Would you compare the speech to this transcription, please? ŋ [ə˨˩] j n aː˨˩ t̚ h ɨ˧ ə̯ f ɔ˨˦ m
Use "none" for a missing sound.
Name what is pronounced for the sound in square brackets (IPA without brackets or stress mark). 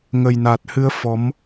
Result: ə˨˩